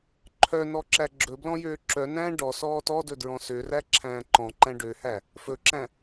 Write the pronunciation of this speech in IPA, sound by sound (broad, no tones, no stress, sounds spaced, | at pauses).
ǃʰ œ n ɔ ǁ æ ɡ͡ǁ ɵ b l ɔ̃ j øː ǁ œ n æ̃ː ɖ ɔ s ɔː t ɔ d ɵ d ɹ ɔ̃ s ø r æ ǁʰ æ̃ː ǃ ɔ̃ ǃ æ̃ ɖ ø h æ | f ɵ ǁ æ̃